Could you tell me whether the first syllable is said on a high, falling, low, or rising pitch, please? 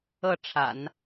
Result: falling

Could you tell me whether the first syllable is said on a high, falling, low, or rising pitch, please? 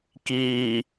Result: low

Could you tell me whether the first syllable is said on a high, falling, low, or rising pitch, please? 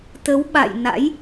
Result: rising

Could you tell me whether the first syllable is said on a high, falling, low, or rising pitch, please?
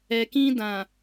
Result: low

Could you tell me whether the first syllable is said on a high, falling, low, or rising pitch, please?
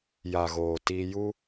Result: low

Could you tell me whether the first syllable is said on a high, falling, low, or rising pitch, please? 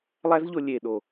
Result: high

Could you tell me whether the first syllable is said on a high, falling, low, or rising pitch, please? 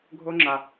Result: high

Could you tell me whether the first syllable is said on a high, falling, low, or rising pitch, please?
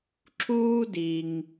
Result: high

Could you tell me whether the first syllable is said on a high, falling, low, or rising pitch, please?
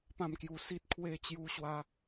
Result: falling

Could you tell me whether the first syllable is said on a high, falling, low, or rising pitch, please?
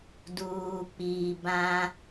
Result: low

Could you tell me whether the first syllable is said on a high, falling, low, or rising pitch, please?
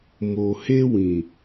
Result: low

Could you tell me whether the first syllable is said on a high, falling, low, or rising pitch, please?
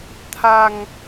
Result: low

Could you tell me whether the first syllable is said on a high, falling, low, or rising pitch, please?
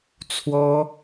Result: high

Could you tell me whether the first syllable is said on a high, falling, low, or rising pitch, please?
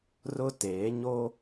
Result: high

